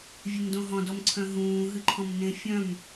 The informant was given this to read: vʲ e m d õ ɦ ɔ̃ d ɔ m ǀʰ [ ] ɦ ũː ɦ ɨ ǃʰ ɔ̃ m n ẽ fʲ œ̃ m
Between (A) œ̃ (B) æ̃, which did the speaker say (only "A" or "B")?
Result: A